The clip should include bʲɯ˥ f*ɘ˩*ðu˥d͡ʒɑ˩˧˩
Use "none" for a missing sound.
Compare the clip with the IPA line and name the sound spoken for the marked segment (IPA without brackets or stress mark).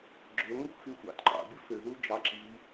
ø˩